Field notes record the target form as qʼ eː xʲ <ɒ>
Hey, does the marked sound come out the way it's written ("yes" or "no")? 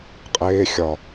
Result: yes